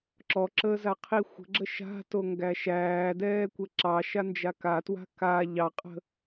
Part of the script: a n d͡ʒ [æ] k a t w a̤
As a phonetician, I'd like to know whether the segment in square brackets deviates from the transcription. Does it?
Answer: yes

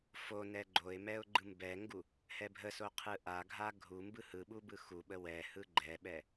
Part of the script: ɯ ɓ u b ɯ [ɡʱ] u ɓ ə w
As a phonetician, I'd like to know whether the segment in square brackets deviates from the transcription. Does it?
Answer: yes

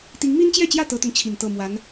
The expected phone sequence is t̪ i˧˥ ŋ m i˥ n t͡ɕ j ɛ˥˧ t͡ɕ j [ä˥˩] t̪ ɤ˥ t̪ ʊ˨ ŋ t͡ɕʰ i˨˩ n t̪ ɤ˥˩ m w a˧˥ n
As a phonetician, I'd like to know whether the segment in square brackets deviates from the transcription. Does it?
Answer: no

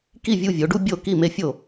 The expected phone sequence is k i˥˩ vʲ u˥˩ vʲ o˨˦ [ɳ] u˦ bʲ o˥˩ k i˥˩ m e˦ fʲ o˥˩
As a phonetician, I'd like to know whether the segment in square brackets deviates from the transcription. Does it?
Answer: yes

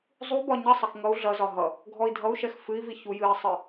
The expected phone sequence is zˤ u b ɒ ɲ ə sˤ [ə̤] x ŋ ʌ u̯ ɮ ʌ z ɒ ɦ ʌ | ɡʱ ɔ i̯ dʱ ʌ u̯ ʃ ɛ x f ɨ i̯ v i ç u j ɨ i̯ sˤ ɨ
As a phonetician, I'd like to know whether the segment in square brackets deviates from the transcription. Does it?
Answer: yes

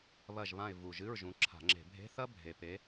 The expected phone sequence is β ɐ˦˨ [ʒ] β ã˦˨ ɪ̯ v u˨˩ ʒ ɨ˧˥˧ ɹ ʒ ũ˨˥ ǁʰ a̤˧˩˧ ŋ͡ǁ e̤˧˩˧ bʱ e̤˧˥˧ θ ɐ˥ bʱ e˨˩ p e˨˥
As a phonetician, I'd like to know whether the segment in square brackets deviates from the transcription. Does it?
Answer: no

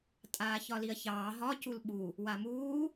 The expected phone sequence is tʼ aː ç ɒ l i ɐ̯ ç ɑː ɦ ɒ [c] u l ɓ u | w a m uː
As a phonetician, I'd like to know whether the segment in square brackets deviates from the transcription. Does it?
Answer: no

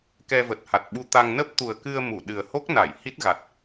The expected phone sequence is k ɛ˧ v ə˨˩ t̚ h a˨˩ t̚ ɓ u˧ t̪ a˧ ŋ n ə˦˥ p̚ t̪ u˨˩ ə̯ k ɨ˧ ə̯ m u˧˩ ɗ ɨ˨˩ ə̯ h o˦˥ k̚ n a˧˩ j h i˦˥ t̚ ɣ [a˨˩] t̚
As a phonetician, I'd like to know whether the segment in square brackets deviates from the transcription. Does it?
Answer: no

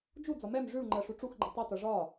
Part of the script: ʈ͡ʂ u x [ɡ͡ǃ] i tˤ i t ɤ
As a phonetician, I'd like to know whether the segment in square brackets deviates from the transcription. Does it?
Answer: no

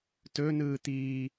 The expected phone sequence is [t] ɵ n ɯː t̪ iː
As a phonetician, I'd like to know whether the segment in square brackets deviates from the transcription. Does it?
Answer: no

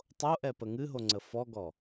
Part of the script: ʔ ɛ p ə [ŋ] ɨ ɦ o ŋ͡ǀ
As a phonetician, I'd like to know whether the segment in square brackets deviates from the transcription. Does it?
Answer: no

